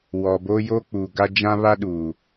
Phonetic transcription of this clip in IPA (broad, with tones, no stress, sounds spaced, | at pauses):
w ɔ˨ b o˦ j oː˦ k͡p uː˨ ɡ a˦ d͡ʒ ã˦ β a˦ ɗ uː˨